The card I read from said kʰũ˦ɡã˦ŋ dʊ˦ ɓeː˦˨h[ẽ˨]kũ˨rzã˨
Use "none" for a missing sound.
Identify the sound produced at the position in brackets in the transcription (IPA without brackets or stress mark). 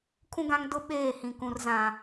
ĩ˨